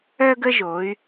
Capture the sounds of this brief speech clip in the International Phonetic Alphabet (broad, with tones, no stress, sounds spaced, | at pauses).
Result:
œ˦ ɡ ə˦ ʒ o˩˧ y̯